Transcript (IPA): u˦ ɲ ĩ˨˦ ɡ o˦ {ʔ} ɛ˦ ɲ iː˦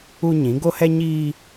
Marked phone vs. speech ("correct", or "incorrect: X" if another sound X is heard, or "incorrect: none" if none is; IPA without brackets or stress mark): incorrect: h